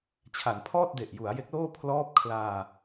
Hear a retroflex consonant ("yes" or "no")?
no